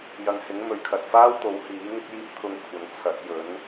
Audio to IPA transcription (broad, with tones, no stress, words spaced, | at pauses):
jɐ˨ŋhɪ˨˥ŋ mɵ˨˩ɥkʰɐ˨t̚faː˥wt̪o˨˥w hiː˨˥ŋɪ˥k̚jiː˥p̚ t̪ʰʊ˧ŋkʷʰɐ˨˥ŋ t͡sʰɐ˨˥t̚ jɵ˨˥n